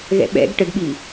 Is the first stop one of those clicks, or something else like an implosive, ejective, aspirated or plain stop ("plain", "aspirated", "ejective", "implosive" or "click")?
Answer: implosive